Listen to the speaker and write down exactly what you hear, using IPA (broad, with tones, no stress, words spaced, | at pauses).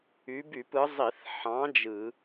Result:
y˨˥by˧˩˧pɯ˨˥ zˤi˧˩˧θħɑ̃˨˥ d͡ʒɯ˧˩˧